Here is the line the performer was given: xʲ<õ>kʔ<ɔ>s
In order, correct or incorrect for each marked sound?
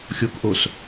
incorrect: o, incorrect: o

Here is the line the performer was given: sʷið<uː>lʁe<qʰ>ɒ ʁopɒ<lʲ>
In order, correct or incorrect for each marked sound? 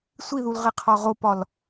incorrect: u, correct, incorrect: l

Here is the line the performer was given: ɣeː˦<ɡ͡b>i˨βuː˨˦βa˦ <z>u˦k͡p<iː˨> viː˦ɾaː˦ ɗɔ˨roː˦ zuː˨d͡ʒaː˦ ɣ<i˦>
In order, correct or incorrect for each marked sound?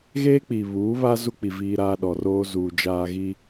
incorrect: k͡p, correct, incorrect: i˨, correct

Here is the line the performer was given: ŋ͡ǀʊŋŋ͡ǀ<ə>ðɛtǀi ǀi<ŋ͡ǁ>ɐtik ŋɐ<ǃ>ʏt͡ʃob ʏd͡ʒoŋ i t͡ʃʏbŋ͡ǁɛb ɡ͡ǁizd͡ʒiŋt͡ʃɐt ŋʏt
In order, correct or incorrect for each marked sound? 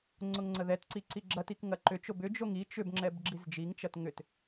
correct, incorrect: ɡ͡ǁ, correct

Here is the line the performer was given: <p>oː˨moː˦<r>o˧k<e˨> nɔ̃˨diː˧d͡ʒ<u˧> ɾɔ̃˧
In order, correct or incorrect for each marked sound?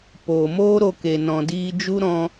correct, incorrect: ɾ, correct, incorrect: u˦

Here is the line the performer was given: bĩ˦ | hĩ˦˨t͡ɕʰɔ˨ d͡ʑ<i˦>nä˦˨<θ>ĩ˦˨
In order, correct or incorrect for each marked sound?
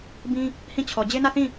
incorrect: e˦, correct

